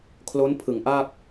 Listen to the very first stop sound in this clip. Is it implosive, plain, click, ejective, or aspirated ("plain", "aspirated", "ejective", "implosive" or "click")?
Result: aspirated